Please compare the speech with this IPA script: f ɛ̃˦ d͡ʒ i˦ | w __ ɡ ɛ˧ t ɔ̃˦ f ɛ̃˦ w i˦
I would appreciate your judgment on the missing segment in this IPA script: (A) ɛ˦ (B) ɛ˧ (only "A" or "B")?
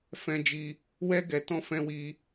A